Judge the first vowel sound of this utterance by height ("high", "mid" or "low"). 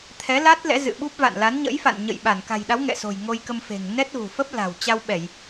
mid